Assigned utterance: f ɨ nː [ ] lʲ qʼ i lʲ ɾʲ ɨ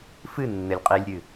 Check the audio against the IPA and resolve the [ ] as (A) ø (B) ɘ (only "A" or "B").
B